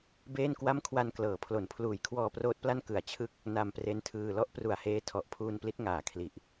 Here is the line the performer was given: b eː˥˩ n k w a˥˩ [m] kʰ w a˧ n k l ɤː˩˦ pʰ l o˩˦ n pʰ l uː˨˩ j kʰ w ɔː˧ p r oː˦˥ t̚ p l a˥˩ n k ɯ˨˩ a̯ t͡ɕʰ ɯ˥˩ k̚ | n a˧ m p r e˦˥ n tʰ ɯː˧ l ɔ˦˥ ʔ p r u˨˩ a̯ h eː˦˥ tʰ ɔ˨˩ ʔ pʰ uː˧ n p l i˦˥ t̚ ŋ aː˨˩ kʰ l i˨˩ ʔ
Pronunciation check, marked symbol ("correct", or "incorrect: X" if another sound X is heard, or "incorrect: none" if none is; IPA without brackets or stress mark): correct